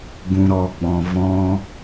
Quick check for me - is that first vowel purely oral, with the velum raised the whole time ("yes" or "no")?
no